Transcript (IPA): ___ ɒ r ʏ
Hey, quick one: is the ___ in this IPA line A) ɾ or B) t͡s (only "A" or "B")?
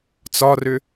B